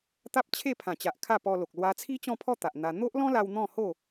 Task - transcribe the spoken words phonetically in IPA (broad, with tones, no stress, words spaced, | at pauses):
t̪a˦p̚t͡ɕʰe˥˧pʰã˨˩t͡ɕa˨ʔ kʰa˥˧pɔ˧lo˨k̚ lwa˧t͡sʰi˦t͡ɕɔ̃˥˧pʰɔ˥˧ t̪a˨ʔn̪a˧ n̪o˦ʔlɔ̃˦la˧w n̪ɔ̃˥˧ho˥˧